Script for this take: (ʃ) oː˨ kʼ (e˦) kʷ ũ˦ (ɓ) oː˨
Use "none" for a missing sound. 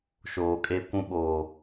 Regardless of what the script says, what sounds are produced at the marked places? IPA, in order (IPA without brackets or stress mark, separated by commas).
ʃ, e˦, ɓ